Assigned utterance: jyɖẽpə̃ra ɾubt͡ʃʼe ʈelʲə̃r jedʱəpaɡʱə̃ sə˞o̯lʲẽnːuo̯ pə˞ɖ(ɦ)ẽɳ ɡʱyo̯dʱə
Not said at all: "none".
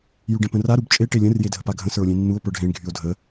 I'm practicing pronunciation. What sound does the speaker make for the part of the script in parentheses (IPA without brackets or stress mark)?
ɦ